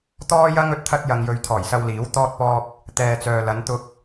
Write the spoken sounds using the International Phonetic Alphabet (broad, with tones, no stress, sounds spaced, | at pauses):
t̪ ɔː˥ j ɐ˥ ŋ ɵ˧ t̚ t̪ʰ ɐ˥ t̚ j ɐ˧ ŋ j ɵ˧ ɥ t̪ʰ ɔː˨˩ j s ɐ˧ w l iː˨˥ w t̪ ɔː˥ t̚ p ɔː˥ k̚ | t̪ ɛː˨ t͡s œː˨ l ɐ˨˧ n t̪ ʊ˧ k̚